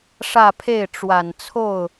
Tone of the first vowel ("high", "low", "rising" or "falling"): falling